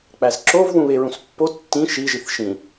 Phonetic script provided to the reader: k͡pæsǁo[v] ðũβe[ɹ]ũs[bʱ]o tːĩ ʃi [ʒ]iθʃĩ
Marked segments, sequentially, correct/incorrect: correct, correct, incorrect, correct

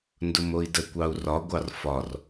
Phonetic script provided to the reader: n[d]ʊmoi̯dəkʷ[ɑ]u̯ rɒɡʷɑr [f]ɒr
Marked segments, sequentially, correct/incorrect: correct, correct, correct

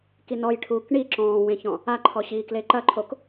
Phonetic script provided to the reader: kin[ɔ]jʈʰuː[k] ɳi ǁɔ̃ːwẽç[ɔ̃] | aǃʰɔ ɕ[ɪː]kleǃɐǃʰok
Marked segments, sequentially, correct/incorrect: correct, correct, correct, incorrect

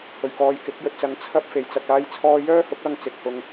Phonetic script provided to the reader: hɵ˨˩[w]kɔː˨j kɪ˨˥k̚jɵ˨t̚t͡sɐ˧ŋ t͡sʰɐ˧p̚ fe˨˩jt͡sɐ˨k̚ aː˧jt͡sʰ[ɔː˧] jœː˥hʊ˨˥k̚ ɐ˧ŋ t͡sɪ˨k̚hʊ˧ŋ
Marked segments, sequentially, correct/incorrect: incorrect, correct

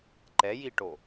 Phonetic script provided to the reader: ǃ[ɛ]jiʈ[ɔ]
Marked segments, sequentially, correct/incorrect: correct, incorrect

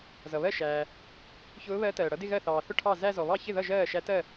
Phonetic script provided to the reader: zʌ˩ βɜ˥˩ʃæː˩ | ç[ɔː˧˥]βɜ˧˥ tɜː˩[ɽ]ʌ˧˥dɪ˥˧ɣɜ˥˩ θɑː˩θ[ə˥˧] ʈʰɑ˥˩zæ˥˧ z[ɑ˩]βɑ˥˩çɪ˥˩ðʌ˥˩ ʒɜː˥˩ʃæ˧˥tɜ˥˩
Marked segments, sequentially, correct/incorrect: incorrect, correct, incorrect, incorrect

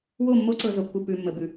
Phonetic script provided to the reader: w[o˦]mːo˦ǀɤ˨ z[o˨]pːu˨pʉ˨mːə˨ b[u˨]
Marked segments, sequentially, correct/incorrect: incorrect, correct, incorrect

